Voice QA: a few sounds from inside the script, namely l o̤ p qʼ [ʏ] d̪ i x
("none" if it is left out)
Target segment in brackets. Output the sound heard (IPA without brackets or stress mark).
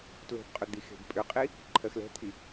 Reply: ʏ